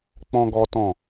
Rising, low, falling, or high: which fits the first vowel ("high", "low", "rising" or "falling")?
high